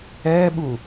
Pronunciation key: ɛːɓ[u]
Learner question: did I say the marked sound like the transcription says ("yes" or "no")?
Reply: yes